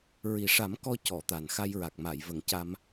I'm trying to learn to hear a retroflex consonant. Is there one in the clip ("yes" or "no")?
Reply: yes